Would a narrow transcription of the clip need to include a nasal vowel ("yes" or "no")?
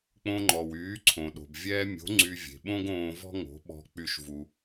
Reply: yes